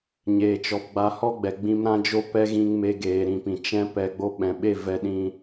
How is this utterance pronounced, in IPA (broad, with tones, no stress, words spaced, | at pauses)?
ɲeː˨t͡ʃɔ˨pɡ͡ba˧ hɔ˦ɡ͡bɛ˨ ɡ͡bĩ˧m ɾã˦d͡ʒo˦ pɛ˦ɣĩ˧ŋ me˧ɡeː˨ɾĩ˨pĩ˨ t͡ʃɛ̃˧ pɛ˧ɡ͡bo˧ ɓɛ̃˨ɓe˦˨ vɛ˧ɗĩ˧